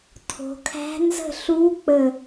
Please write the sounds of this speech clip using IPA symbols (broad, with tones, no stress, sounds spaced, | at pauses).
tʰ o̤˩˧ kʰ æ̤˧˥ n z ə̤˥˨ ɬ u˧˥ k͡p ə˧˩